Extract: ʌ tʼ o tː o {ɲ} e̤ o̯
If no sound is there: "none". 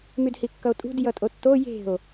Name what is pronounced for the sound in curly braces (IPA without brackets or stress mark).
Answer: j